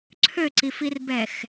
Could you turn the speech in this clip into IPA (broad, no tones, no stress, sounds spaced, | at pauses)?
ǀʰ ø ǀ i f i r b ɛ x